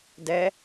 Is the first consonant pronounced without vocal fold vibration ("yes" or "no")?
no